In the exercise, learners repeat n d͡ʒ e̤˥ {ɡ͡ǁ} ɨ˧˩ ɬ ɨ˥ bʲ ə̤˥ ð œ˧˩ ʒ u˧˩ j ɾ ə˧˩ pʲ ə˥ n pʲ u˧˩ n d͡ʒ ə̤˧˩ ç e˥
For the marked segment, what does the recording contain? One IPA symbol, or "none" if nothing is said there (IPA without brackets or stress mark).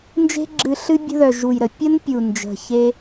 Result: ɡ͡ǁ